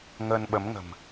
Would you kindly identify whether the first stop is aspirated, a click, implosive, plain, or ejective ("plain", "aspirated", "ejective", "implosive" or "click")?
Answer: implosive